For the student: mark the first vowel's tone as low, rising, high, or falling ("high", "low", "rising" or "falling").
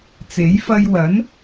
rising